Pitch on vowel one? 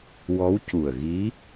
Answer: rising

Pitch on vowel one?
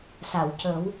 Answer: low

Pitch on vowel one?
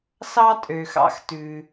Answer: high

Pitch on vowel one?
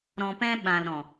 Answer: low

